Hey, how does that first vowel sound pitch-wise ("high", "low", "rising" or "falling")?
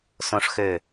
low